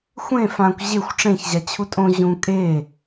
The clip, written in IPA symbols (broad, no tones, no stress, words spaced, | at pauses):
xʷẽ fãkʷ ʑexʷ ʈ͡ʂẽçʑa t͡ɕʰutʼõ ʑũ kʼe